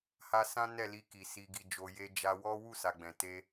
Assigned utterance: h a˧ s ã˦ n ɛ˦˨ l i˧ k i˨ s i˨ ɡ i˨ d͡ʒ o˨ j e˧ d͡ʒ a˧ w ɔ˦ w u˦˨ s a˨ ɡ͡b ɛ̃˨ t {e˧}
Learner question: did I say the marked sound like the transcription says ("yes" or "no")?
yes